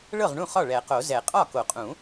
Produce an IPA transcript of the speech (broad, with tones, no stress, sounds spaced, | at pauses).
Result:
ɭ ɤ˥˩ ʁ ɳ ũ˥˩ χ ɒ˥˩ ɭ ɛ˨˩˦ q o˨˩˦ z ɛ˨˩˦ qʼ ɒ˥˩ k o˨˩˦ qʼ ũ˨˩˦